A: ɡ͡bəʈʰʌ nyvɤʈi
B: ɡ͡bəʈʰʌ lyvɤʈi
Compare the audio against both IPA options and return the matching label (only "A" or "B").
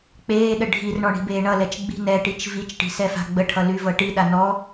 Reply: B